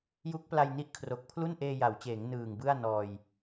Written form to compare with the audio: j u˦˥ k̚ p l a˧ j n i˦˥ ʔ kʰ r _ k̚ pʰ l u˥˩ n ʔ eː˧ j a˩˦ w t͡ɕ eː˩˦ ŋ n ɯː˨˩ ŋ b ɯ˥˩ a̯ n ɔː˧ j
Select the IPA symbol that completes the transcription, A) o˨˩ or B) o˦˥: A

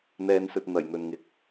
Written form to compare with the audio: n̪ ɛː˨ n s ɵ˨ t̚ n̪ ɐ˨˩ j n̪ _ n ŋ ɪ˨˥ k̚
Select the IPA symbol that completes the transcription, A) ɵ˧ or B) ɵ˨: B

